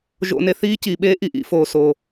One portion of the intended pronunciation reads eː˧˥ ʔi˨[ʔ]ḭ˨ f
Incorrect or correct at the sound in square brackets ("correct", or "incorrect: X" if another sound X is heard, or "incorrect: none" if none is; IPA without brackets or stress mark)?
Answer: correct